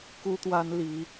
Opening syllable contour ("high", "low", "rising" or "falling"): high